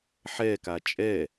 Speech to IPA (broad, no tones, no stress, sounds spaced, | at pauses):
ħ ɛ k a t͡ʃʼ ɛ